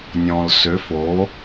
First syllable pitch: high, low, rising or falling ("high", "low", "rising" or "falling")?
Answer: low